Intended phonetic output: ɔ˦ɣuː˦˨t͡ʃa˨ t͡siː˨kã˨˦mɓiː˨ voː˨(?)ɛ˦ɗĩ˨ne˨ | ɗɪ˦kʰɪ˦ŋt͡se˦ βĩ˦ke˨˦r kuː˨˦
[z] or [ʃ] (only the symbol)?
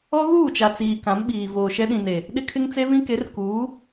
ʃ